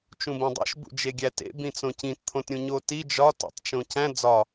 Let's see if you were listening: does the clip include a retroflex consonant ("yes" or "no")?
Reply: no